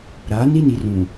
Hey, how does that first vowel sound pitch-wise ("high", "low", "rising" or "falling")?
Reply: rising